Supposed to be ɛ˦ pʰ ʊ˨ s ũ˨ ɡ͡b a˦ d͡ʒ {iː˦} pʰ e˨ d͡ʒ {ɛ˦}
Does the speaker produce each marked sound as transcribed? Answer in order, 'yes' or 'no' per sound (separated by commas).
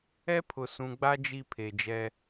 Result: no, yes